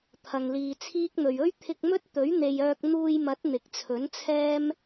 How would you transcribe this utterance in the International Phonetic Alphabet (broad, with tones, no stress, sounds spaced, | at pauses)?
t̪ʰ ɐ˨ ŋ l iː˨ t͡sʰ iː˥ k̚ n̪ ɵ˨ ɥ ɵ˥ ɥ t̪ʰ ɪ˧ k̚ m ɵ˥ t̚ t̪ ɵ˨˥ ɥ n̪ e˨ j œː˧ k̚ n̪ uː˧ j m ɐ˨˥ t̚ n̪ ɪ˨ k̚ t͡sʰ ɵ˨˥ n t͡sʰ ɛː˥ m